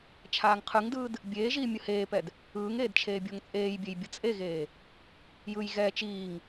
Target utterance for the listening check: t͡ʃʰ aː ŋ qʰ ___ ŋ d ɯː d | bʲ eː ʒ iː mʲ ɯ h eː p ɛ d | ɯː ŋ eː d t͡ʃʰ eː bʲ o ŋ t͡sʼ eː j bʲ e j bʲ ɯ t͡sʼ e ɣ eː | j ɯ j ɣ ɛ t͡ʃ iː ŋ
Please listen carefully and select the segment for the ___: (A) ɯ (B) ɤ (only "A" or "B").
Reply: A